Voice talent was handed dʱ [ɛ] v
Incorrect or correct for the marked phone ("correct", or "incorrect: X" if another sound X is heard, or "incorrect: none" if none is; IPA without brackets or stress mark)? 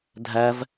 incorrect: æ